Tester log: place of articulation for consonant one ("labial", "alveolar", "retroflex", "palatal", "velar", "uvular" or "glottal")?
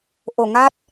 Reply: glottal